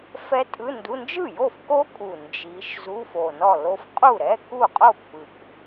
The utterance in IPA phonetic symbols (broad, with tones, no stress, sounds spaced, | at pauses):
f ɛ˦˥ tʼ ɯ˧˥˧ n d u˧˥˧ n d͡ʒ ɯ˥˩ j o˥˩ f k o˦˥ kʼ u˨˩ n d͡ʒ i˨˦ ʃ z u˧˥˧ f o˨˩ n ɔ˥˩ l o˦˥ f qʼ u˥˩ ɾ ɛ˧˥˧ k u˥˩ qʼ o˥˩ pː ɯ˨˩ k